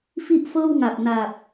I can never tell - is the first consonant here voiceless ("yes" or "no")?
yes